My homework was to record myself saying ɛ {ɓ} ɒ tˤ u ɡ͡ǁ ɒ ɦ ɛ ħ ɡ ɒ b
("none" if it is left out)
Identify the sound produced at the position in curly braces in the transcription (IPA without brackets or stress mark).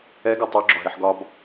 ɡ